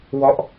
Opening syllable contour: falling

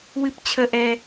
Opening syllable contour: high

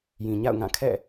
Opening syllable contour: low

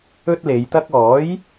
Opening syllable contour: high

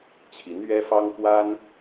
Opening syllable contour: rising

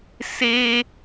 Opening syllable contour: high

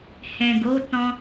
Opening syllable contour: low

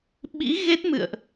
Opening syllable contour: rising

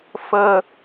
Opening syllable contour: high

